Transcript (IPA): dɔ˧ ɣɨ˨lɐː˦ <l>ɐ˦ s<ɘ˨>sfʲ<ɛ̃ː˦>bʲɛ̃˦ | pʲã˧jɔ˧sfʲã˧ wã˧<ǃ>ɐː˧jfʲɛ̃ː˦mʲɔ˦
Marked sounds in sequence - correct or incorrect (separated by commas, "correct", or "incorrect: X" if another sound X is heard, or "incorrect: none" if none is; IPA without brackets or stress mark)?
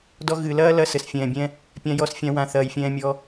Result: correct, correct, incorrect: ɛ̃ː˨, incorrect: θ